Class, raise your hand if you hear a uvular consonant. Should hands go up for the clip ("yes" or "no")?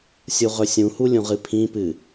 yes